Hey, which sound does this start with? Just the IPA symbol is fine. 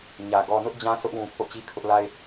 ɲ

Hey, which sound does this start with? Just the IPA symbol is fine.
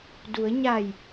d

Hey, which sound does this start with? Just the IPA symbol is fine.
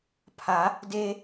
pʰ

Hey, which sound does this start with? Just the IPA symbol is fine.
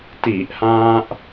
t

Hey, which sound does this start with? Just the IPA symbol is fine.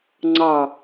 ŋ͡ǀ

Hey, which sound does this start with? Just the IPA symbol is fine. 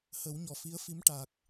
h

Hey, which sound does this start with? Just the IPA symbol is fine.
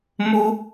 m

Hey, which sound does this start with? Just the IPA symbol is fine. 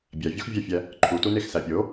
bʲ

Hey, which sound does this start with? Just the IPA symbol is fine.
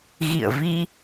ɣ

